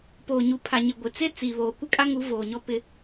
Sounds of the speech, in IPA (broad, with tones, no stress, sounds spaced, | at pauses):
p oː˨ ɲ u˨ pʰ a˨ ɲ ɪ˨ ɡʷ ɪ˨ t͡s e˦ t͡s iː˨ β oː˨ kʷ ɪ˦ kʼ a˦ ŋ u˨˦ v oː˨ ɲ ɔ˦ p ɪ˦